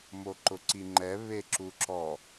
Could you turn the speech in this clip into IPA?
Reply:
m o ǃ ʊ ǀ i ŋ͡ǃ ɛ β e ǁ u ǁ ɔ

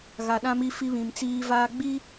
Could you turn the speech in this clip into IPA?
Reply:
ɣ a˨ ɗ ã˦ m i˦ f i˦ β ĩ˨ m t͡s iː˦ v aː˦ ɡ͡b i˦

